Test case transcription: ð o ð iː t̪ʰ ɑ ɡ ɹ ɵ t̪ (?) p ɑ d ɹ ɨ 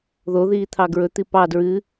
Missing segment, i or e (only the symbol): i